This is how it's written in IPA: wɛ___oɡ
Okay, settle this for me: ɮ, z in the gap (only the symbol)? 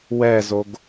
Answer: z